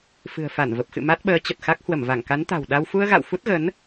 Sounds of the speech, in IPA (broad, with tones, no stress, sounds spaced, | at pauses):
f ɨ̤˨˩ ə̯ f a˧˩ n v ə˨˩ p̚ x ɨ̰˧˨ m a˦˥ t̚ ɓ əː˨˦ t͡ɕ ə˨˩ t̚ x a˦˥ k̚ h w ə˧˩ m v a˧˩ ŋ k a˨˦ n t̪ a̤˨˩ w ɗ a˧ w f u˧ ə̯ ɣ a̰˧˨ w f u˦˥ t̚ ɣ ə˨˦ n